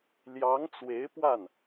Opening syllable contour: rising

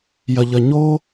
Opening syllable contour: low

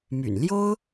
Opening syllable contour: low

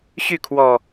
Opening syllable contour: falling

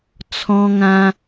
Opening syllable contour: high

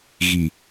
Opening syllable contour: low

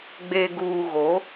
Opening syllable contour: low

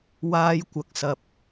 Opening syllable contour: high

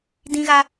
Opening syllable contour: high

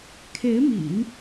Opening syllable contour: rising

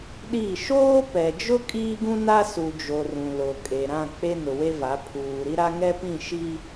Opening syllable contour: falling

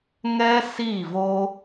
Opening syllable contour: high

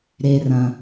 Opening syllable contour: low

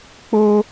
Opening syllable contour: high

